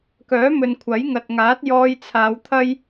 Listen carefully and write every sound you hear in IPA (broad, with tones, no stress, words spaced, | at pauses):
kœː˨˥mɵ˨nkʷʰɐ˨˥jŋɐ˨t̚ ŋaː˨˥t̚jɔː˧jt͡sʰaː˨˧wt̪ʰɐ˥j